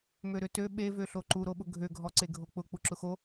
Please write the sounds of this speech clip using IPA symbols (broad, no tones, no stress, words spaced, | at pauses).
møɾøtø ɓevøɬo ǃuɾoɓʊ ɡʱøɡʱɔ ǀeɡʱok͡pʊ k͡puǁʊxo